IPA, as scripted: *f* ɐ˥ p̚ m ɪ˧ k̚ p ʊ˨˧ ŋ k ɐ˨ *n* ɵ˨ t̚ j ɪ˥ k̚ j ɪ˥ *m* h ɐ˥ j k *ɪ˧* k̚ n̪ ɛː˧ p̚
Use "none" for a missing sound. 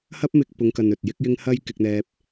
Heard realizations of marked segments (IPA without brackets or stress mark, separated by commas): h, n, ŋ, ɪ˧